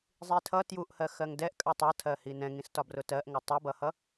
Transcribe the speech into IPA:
zˤ i tʰ ʌ t j u ʔ h ɜ x ɜ ŋ d ɛ ʔ kʼ ɜ tˤ ʌ tʰ ɜ h i n ɛ̃ ŋ ĩ s t ɒ b r ʊ t ɜ ʔ ŋ ɜ tˤ ʊ b ʌ h ʌ

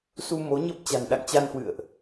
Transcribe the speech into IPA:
s u˧ m o˨˦ ɲ ə˦˥ p̚ t͡ɕ a̤˨˩ n ɗ a̰˧˨ ŋ t͡ɕ a˧ n h w ɨ̰˧˨ ə̯ ʔ

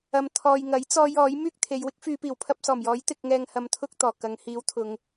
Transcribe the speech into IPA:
ɐ˨ m t̪ʰ ɔː˨ j ŋ ɐ˨˥ j t͡s ɔː˧ j ɔː˨˥ j m yː˥ k̚ t̪ʰ e˨˧ j w ɪ˥ k̚ f yː˨˧ p iː˨˩ w pʰ ɐ˧ p̚ s ɔː˨˩ m j ɔː˨˥ j t̪ ɪ˧ k̚ ŋ ɛː˧ ŋ h ɐ˧ m t̪ʰ ʊ˥ k̚ t̪ ɔː˨˩ k ɐ˨˧ ŋ h iː˨˥ w t̪ʰ ʊ˨˧ ŋ

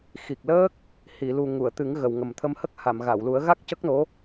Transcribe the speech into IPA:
x i˨˩ k̚ l əː˦˥ k̚ | h i˨˩˨ l u˨˩ ŋ u˨˩˨ ə̯ t̪ ɨ˨˩˦ ŋ ɣ ə˨˩ w ŋ ə˨˩ m t̪ʰ ə˧ m h ə˦˥ k̚ h a˨˩˨ m ɣ a˨˩˨ w l u˨˩˦ ə̯ ɣ a˦˥ k̚ c ə˦˥ k̚ n o˧˥

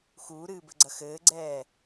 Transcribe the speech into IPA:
x uː ɾ ɨː b ɘ ɡ͡ǀ ɐ x ɘː ɡ͡ǀ ɛː

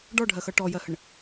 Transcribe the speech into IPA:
ɖ ɔ ɖʱ ɜ x ʌ ʈ ɔ j ɜ h ə ɳ

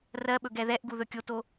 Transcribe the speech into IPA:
r ɜ ɓ ɵ ɡ ɛ ð ɛ ʔ ɡ u ð ɵ kʲ o t o

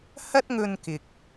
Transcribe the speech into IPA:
h ɐ˥ t̚ ŋ ɵ˧ n k ɪ˨ k̚

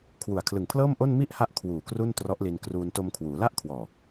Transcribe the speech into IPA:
kʰ w u˨˩ a̯ kʰ l ɯ˨˩ ŋ pʰ l ɤː˥˩ m ʔ o˥˩ n m i˥˩ ʔ h a˦˥ ʔ kʰ w uː˨˩ k r u˥˩ n t r ɔ˦˥ ʔ l i˧ n k r uː˧ n t o˧ m kʰ w uː˩˦ l a˥˩ ʔ kʰ w ɔː˨˩

